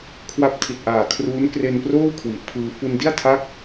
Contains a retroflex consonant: no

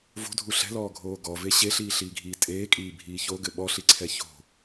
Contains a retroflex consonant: no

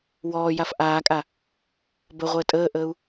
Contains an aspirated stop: no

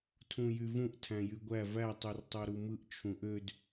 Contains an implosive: no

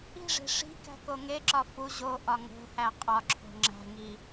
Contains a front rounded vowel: no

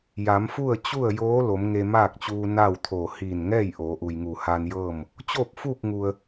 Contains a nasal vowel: no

